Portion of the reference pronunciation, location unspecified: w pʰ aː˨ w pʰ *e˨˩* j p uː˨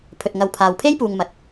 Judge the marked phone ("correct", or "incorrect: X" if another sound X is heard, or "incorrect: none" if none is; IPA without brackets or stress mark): incorrect: e˥